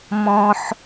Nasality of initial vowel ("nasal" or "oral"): nasal